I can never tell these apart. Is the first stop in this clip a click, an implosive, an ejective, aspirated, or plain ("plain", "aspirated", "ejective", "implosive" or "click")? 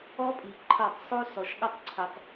ejective